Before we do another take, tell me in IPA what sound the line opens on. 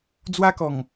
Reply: d͡z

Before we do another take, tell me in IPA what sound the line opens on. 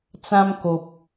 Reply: t͡s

